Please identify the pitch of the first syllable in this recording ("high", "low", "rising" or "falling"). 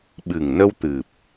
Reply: low